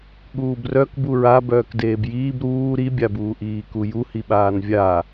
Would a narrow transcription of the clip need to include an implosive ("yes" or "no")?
yes